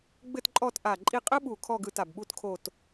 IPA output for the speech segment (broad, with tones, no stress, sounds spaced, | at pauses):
ɡ͡b ɘ˥˧ t ǃʼ ɔ˥˧ t ʔ a˧˩ ǃʼ i˥˧ qʼ ɯ˥ ɓ u˧˩ kʰ ɔ˥˧ ɡ ɯ˧ t a˧˩ b ɓ u˥˧ t kʰ o˥˧ t